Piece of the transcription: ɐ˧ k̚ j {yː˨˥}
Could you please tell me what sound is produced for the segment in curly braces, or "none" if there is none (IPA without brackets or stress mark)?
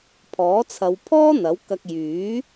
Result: yː˨˥